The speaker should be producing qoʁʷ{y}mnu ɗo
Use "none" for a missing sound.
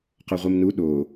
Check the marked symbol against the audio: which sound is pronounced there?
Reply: i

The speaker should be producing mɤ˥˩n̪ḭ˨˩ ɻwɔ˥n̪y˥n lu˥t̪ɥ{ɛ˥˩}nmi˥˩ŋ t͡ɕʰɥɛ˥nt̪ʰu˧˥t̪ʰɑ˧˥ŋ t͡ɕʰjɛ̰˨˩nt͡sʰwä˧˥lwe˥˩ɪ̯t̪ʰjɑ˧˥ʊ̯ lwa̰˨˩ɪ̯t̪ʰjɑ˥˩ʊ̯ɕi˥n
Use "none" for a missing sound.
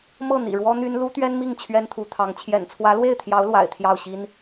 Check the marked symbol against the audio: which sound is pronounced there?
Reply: ɛ˥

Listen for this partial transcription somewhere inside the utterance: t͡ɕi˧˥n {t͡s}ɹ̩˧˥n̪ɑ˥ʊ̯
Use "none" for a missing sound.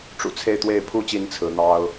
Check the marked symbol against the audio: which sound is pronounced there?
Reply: t͡sʰ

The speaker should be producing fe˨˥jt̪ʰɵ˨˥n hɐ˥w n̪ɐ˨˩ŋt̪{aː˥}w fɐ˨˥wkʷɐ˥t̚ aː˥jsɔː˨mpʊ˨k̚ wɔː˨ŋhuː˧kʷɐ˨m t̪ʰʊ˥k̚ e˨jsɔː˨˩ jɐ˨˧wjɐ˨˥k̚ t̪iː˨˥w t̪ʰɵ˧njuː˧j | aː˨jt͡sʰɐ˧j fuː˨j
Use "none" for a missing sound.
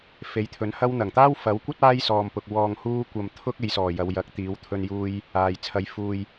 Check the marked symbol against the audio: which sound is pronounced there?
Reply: aː˥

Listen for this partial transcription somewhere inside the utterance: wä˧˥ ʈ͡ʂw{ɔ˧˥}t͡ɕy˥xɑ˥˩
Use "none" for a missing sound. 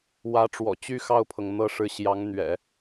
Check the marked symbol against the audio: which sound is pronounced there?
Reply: ɔ̰˨˩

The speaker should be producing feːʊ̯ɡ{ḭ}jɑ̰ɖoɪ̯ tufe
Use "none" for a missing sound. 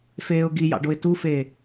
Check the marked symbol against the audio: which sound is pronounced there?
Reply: i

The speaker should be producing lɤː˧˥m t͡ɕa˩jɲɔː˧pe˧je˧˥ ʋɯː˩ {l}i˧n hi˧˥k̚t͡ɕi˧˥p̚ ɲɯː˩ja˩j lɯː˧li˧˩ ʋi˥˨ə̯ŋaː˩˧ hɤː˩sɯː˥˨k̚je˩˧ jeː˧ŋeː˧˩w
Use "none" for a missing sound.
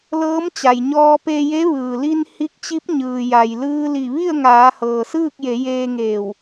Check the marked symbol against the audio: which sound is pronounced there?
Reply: l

